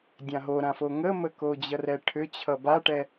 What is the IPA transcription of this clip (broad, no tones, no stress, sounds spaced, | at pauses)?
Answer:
dʲ ã ɦ o ɾ ã f o ŋ ə m ə k o d͡ʑ ʌ r ɛ ʈʰ ʏ t͡ɕʰ ʌ b a ʈ ɛ